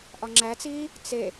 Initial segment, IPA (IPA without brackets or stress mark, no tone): ʔ